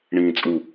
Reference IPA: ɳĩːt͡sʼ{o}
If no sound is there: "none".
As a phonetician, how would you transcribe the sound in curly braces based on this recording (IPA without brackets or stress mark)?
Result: u